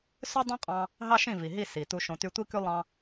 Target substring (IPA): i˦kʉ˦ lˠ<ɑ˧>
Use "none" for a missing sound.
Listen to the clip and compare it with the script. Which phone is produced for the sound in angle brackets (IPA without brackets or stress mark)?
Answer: ɑ̃˧